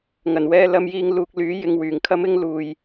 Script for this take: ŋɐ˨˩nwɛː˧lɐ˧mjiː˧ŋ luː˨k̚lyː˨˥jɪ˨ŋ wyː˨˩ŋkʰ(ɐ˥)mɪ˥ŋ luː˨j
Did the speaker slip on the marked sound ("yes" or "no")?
no